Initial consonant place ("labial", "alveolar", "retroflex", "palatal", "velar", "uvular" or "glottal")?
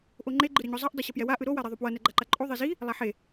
glottal